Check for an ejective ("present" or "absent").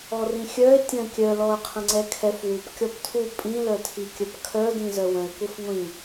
present